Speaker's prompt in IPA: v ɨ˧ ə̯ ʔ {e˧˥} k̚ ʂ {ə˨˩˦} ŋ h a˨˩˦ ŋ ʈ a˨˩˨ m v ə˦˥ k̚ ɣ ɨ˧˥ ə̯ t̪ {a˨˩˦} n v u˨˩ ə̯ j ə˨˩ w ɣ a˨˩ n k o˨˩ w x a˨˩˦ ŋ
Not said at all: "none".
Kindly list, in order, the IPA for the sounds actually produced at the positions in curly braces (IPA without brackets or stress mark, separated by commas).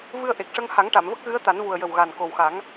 e˨˩, ə˧, a˨˩˦